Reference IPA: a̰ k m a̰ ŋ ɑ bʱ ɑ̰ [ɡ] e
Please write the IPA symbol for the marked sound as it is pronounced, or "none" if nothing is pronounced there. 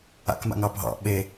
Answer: ɓ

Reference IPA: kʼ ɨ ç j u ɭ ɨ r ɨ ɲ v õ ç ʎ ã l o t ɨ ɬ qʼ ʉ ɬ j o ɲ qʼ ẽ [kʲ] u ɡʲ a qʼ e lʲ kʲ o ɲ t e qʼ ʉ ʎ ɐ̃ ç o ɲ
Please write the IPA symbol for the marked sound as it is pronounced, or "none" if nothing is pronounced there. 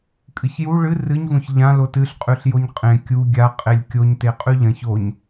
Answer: kʲ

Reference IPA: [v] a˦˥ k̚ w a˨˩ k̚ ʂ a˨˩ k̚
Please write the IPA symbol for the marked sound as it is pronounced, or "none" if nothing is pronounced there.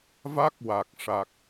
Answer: v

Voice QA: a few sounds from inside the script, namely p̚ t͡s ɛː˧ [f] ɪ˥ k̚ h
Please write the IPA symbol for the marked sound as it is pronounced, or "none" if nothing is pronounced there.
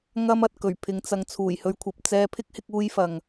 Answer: pʰ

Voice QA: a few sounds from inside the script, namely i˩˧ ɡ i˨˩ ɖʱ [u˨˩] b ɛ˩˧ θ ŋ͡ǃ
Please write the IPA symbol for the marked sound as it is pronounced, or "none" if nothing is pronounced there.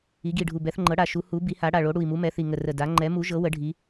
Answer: u˨˩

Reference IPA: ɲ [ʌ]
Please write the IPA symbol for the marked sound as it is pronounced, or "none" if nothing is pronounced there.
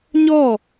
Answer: ɔ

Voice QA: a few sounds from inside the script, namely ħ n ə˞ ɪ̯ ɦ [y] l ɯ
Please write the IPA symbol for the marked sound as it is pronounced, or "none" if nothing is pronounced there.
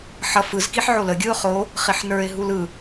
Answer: u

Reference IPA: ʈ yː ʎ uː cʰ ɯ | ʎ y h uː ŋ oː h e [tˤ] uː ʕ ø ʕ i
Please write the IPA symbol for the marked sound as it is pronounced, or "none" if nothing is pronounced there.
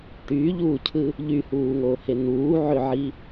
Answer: n̪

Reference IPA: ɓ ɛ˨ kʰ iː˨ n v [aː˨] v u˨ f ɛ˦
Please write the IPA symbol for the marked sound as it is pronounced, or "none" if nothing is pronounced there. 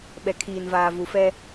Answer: aː˨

